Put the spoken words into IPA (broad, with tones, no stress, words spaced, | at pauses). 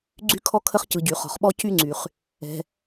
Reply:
ɡ͡ǀy˥kʰɔ˥kʰə˥χ cɯ˩ɟy˩ χɔ̤˩χɓɔ˥cy˥ŋ͡ǀy˩χ | ɛ̤˩